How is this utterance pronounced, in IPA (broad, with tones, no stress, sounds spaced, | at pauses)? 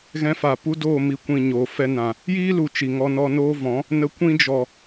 ɣ ɛ̃˧ f a˨ p u˦ d oː˦˨ m i˨ kʷ ĩ˨ ɲ oː˨ f ɛ˧ n ã˨ | j iː˦ l u˨ t͡ʃ i˨ ŋ ɔ˧ n ɔ˧ n oː˦ v ɔ̃˨˦ | n ə˧ kʷ ĩ˧ d͡ʒ ɔ˨